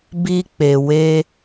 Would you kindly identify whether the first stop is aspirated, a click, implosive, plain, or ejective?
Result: plain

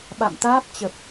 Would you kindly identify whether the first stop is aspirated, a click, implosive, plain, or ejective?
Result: implosive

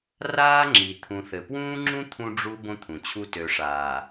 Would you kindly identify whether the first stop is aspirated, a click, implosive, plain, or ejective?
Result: click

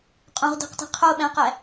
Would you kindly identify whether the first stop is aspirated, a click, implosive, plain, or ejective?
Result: ejective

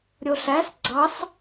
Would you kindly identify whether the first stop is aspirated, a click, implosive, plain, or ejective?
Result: click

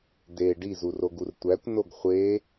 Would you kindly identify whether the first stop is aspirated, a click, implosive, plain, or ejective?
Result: plain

